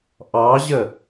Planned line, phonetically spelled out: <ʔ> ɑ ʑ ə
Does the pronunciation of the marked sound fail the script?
no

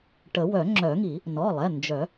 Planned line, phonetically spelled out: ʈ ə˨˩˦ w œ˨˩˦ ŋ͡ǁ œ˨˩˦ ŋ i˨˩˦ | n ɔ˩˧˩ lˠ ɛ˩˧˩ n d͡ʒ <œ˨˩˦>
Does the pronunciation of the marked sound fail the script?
no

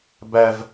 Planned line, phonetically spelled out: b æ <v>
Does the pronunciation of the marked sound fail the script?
no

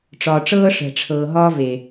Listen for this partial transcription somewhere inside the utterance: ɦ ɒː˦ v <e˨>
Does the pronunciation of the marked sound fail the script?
no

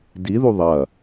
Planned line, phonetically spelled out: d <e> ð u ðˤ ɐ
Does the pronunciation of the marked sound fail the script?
yes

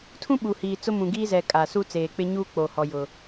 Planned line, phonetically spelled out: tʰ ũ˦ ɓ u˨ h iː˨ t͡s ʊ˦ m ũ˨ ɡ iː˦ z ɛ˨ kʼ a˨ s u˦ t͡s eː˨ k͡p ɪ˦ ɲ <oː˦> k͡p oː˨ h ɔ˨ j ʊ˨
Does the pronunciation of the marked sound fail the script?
yes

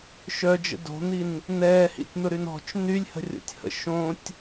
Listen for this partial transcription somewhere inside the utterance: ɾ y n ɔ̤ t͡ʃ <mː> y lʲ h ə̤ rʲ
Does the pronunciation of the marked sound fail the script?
yes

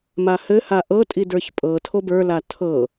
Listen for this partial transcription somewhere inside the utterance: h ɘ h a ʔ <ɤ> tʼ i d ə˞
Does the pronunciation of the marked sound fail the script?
no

